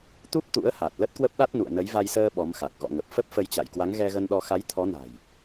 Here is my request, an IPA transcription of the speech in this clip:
t̪ u˦˥ p̚ t̪ ṵ˧˥ ə̯ h a˨˩ t̚ l ə˦˥ t̚ k w ə˦˥ p̚ ɗ a˦˥ t̚ n ṵ˧˨ ə̯ n ə˨˦ j v a˧ j s əː˧ ɓ ɔ˨˦ m x a˨˩ k̚ ɣ ɔ̰˧˨ ŋ ə˨˩ p̚ f ə˦˥ p̚ f ə˧ j t͡ɕ a̰˧˨ j k w a˨˦ ŋ ɣ ɛ˧ ɣ ə˧ n ɗ ɔ˧ x a˨˦ j t̪ʰ ɔ˨˦ n a̤˨˩ j

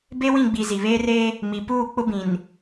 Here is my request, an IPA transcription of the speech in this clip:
b e˦ w ĩ˦˨ ɡ͡b i˨ z i˨ β eː˦ r eː˦ | m i˨ p uː˦˨ k͡p ʊ˦ b ĩ˨ n

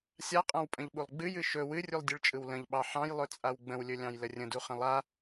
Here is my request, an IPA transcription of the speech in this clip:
sʲ a qʼ ã w pʼ ə̃ ʎ ɓ u lˠ ɡ͡b ɨ j ɨ ʃ ɵ w ɨ rʲ u lˠ dʲ ɨ ɭ t͡ʃʼ ɯ w l ə̃ ʎ ɓ ɑ ħ ɑ̃ j lˠ ɵ t͡sʼ a w ɡ͡b ə̃ w lʲ ɵ lʲ ɑ̃ j l ə rʲ ə̃ d u χ ə̃ lˠ a

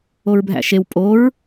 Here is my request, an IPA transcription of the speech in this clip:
o ɹ bʱ æ̰ ʃ e w pʼ o ɹ

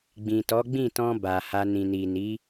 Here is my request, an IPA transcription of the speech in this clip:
ɡ͡b ĩ˨ t ɔ˨˦ ɡ͡b ĩ˦˨ t ɔ̃˧ b a˨ h a˧ n ĩ˨ n i˨ n i˨˦

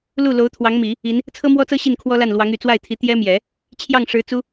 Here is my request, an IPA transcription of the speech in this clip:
l u˥˩ l o˧˥ ʊ̯ t̪ʰ w ɑ˧˥ ŋ m i˨˩˦ | i˧˥ n | t͡sʰ ɤ˥ m w ɔ˥ t͡s ɤ˥ ɕ i˥˩ n kʰ w ɔ˥ l a˥˩ n l w ɑ˧˥ ŋ y˨˩ t͡s w a˥˩ ɪ̯ t̪ʰ i˧˥ t̪ j ɛ˥ m j ɛ˨˩˦ | t͡ɕʰ j ɑ˥˩ ŋ ʂ ɻ̩˧˥ t͡s u˥

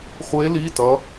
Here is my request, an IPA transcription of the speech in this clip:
χʷ e˦˥ l i˧˥˧ t ʌ˦˥

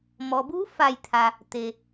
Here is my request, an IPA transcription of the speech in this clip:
m ɔː˩ b uː˧˥ f a˧˩ j t̪ʰ a˩ | t̪ e˩

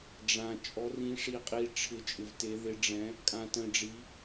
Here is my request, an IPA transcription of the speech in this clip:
ɖ͡ʐ ã˧ t͡ʃʼ ɔ˧˥ r ĩ˧˥ ʂ i˧ qʼ i˧ ʈ͡ʂʰ ɪ˧˥ t͡ʃʼ ɪ˧ v t e˧˥ ð ɪ˧˥ ɖ͡ʐ ɛ̃˧˥ | kʼ ã˧ t ə̃˧ ɖ͡ʐ i˧˥

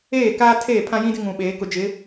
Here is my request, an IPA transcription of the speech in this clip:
eː˦˨ k aː˦ tʰ eː˦˨ pʰ ã˦ j ĩ˦ d ɪ˦ ŋ ũ˨ ɓ eː˨˦ k ʊ˨ d͡ʒ ɪ˨˦

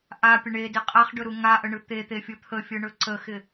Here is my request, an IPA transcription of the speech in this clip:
ʔ a pʲ ə ɳ e d ɪ qʼ a χ ɖ ɵ ɾ u ŋ a ʔ ə ɳ ɯ t̪ e t̪ e fʲ ɯ t̪ʰ ə fʲ ɯ ɳ ɵ ǀ ə x ɪ

